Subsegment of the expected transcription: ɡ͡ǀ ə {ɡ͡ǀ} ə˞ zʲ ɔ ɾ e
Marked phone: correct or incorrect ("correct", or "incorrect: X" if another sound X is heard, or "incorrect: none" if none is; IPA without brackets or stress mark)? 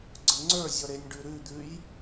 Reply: incorrect: ŋ͡ǀ